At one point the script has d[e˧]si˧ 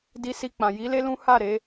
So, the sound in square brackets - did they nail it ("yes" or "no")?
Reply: no